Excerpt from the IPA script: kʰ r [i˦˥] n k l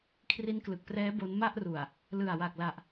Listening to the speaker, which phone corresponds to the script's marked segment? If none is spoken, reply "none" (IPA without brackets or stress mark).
i˦˥